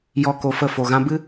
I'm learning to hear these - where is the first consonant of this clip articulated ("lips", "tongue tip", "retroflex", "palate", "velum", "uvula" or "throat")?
palate